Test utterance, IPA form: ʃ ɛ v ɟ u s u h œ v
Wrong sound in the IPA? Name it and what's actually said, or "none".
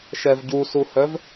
none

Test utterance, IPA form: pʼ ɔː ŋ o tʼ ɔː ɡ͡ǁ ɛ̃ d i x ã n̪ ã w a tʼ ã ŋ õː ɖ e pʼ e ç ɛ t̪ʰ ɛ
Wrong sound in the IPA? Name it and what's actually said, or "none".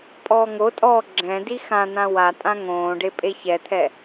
none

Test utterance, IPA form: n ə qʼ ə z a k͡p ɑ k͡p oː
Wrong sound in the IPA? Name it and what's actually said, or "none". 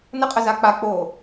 ɑ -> a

